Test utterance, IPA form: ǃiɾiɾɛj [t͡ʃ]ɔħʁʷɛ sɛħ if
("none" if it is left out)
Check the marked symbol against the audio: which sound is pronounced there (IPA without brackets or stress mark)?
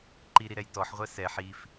t